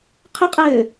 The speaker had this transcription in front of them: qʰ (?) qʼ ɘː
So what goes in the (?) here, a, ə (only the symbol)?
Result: ə